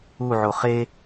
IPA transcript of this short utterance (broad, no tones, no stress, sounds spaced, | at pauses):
u ʕ o χ e